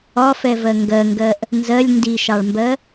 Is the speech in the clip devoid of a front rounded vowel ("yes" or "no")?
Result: yes